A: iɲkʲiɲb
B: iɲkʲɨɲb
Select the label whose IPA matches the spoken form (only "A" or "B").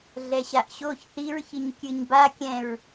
B